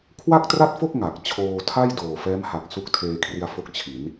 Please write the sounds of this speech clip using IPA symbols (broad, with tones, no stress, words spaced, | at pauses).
kʰwa˥˩k̚tra˥˩t̚fo˥˩k̚ ŋa˨˩k̚t͡ɕʰoː˧tʰa˥˩j doː˨˩fɛː˦˥mha˨˩k̚ su˦˥k̚tʰeː˧kʰri˧a̯fo˦˥k̚ t͡ɕʰi˩˦n